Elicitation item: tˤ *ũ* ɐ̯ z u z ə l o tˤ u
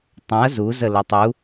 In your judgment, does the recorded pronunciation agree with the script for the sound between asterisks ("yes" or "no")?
yes